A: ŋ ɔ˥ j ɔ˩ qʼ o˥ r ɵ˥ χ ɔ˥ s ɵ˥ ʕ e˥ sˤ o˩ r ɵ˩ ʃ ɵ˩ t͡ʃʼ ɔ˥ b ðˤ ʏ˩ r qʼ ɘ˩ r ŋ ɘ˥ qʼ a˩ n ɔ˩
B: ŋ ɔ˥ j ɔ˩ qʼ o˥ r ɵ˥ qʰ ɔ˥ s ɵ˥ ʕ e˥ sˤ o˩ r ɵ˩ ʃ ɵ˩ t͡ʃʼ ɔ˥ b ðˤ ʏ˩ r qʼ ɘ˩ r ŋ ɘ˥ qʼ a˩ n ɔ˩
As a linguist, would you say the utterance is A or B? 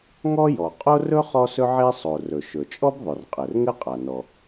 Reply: A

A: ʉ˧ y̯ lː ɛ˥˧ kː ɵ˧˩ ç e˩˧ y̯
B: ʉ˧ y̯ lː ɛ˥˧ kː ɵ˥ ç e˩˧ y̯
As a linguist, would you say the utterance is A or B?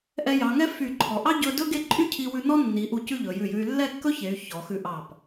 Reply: B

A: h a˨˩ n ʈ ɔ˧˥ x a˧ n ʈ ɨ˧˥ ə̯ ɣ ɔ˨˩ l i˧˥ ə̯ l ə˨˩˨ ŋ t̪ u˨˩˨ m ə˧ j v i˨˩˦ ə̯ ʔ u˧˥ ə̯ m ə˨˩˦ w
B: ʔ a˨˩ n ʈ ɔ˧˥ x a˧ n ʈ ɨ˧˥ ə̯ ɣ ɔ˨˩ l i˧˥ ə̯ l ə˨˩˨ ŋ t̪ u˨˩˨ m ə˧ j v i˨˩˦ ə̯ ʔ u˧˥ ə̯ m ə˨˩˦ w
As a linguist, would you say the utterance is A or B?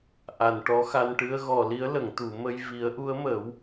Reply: B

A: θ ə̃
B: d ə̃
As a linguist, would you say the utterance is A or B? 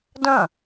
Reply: B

